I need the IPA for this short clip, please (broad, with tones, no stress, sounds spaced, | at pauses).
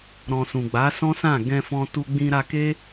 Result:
ɾ ɔ̃˨ s ũ˨ ɡ͡b a˨˦ s ɔ̃˦ s ã˦˨ ɡ ɛ̃˧ f ɔ̃˧ t u˧ ɡ͡b ĩ˧ ɾ a˧ k e˦